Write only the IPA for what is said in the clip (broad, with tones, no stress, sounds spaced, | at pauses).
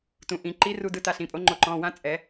t ũ˩˧˩ ʔ ĩ˨˩˦ ǃ i˧˥ r u˧ d ɯ˧˥ t a˧ ɬ ĩ˩˧˩ pʼ o˧˥ ŋ͡ǃ o˧ ǃ ɔ̃˩˧˩ w ã˧˥ t͡sʼ ɛ˨˩˦